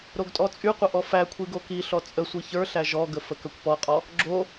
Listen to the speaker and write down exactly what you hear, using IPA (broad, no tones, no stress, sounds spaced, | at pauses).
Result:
ɾ o ɡ tʼ ɔ t͡sʼ y qʷ ə ʔ ɔ f æ kʷʰ i ɡ o k i ɬ ɔ t͡sʼ ə sʷ i ç ə˞ ɬ æ ʒ ɔ ɡ ə f ə k ə kʷ p ɔ qʼ ɔ | ɡ͡ǁ o